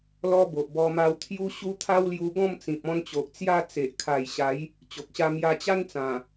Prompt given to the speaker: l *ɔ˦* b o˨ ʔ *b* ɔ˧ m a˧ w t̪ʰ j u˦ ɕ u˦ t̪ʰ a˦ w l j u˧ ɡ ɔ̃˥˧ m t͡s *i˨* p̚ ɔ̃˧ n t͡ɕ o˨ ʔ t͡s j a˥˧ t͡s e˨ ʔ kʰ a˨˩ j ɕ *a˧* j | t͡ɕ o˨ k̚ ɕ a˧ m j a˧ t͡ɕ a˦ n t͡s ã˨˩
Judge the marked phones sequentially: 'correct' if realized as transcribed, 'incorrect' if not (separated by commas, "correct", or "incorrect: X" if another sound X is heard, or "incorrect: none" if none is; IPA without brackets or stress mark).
correct, correct, incorrect: ĩ˨, incorrect: a˨˦